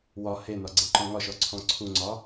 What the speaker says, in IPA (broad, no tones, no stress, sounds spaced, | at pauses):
w ɒ h e n ɒ ɡ͡ǀ e ǃ ɔ̃ ŋ ɒ ʃ ɔ ǀʰ ɔ̃ ǀʰ u ŋ͡ǀ ɒ